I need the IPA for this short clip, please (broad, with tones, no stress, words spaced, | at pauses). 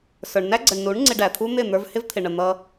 sə˞˨ɳnæ˦ɡ͡ǀə˨ɳnu˨˦ɳ ŋ͡ǀɪ˧ɖæ˨t̪ʰu˦ n̪ɪ˦˨n̪ə˞˧v hɪ˦vt̪ʰɪ˨ɳə˨ n̪ʌ˦